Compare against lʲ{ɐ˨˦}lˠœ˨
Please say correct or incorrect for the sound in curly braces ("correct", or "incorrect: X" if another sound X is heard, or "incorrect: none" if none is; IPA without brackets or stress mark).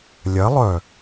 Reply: correct